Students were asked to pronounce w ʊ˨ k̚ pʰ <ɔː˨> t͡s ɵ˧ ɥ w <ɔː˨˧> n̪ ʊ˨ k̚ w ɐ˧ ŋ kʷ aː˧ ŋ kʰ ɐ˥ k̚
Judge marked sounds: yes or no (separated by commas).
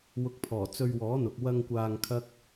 no, no